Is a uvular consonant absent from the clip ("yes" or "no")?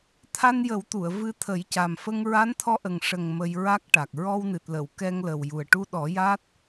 yes